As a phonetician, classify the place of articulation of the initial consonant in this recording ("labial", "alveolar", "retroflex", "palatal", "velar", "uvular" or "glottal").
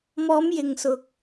labial